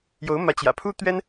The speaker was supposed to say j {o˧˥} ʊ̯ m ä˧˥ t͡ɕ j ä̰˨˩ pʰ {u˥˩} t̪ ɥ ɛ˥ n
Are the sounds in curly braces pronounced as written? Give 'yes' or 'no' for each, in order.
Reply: yes, no

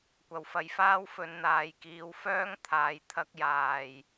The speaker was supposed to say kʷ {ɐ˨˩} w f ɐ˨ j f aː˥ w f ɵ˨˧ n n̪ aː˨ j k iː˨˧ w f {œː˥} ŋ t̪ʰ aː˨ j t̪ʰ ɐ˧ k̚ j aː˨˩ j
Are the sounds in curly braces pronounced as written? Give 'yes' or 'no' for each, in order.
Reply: yes, yes

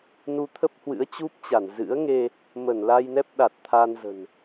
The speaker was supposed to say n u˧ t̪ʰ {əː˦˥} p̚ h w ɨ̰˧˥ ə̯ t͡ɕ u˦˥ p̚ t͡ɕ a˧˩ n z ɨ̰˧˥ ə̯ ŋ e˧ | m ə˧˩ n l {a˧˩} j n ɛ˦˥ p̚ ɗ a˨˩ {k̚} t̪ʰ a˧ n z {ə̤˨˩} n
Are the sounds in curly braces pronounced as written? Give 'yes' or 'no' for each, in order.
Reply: no, no, no, yes

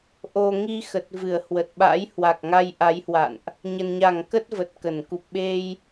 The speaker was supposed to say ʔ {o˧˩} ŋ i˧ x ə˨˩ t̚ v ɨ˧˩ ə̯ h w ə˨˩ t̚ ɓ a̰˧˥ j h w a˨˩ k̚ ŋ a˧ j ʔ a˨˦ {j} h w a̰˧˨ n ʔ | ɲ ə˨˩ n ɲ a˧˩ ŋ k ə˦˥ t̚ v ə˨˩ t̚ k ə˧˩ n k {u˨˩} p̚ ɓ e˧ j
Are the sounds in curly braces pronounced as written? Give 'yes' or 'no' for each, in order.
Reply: no, yes, yes

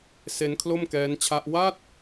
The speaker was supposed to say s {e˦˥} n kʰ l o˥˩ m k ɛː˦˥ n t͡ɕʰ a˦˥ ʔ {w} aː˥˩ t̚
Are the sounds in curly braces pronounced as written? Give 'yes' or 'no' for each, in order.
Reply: yes, yes

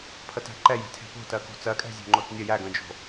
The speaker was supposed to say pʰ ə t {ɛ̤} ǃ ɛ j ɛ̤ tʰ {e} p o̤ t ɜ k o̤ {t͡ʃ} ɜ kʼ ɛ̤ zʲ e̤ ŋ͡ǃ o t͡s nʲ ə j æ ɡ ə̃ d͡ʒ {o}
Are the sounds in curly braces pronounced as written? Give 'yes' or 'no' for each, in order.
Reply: no, no, no, no

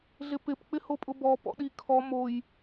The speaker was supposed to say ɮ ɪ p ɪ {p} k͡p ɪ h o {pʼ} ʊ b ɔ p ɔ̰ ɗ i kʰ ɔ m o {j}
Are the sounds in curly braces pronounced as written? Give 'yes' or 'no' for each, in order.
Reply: yes, yes, yes

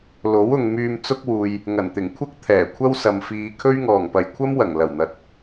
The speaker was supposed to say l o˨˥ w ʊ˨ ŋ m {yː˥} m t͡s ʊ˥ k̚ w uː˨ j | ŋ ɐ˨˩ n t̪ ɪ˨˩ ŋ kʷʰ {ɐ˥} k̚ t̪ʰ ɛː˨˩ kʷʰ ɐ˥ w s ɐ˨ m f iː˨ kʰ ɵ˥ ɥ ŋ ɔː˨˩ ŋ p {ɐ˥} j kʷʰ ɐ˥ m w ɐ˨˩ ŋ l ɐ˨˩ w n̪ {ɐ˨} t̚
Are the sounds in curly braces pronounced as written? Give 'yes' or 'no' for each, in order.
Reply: no, yes, no, yes

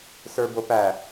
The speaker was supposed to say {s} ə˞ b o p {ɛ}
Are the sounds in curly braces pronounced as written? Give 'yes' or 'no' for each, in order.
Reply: yes, no

